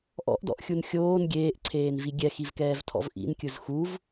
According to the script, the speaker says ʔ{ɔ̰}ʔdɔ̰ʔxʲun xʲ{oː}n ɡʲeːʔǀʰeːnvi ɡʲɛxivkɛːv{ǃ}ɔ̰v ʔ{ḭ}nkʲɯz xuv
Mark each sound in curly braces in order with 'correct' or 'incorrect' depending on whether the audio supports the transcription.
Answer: correct, correct, incorrect: tʰ, correct

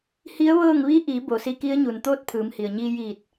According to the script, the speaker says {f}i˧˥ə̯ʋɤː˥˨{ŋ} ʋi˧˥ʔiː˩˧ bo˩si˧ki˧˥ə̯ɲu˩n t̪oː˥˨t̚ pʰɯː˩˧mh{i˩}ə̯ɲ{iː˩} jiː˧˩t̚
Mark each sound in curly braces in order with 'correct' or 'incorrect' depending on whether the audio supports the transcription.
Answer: incorrect: h, correct, correct, incorrect: iː˧

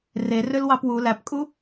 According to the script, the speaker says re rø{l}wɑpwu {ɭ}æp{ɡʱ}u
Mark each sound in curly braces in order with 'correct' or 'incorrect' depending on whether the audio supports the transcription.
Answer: correct, incorrect: l, incorrect: kʼ

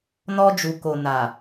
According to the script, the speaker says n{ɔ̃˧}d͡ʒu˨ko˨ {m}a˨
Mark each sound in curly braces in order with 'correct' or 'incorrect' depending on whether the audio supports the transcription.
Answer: incorrect: ɔ˧, incorrect: n

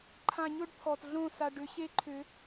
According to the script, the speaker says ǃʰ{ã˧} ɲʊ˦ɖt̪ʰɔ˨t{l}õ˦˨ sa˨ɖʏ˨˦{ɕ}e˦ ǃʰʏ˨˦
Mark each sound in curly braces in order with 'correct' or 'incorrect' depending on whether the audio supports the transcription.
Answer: correct, incorrect: ɮ, correct

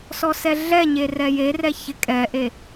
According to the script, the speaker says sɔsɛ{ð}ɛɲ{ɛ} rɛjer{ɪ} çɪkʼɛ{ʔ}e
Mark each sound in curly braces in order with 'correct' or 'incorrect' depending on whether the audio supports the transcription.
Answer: incorrect: ɮ, incorrect: e, incorrect: ɛ, correct

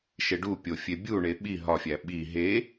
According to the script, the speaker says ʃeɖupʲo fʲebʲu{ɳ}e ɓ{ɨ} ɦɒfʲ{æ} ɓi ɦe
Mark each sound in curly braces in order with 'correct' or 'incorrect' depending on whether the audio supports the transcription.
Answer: correct, incorrect: i, correct

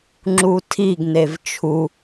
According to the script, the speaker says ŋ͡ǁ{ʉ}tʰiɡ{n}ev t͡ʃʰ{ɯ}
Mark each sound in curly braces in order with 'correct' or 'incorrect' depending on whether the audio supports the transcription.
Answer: incorrect: u, correct, incorrect: u

